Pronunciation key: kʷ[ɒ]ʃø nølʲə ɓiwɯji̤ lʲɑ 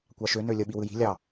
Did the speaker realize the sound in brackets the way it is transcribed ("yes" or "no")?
no